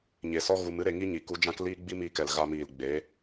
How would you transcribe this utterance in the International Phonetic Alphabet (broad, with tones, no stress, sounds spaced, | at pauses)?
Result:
ɲ e˨ s ɔ˦ ɣ u˧ m ɨ˦ ɾ e˧ ŋ i˦ ɲ i˨ k u˧ d͡ʒ ã˦ k l iː˦ ɡ͡b i˦ m iː˧ k ɛ˨ l ɣ a˧ m iː˨ l ɡ͡b e˨˦